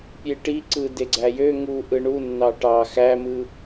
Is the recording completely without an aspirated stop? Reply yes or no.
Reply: yes